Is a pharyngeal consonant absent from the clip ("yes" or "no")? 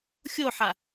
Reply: no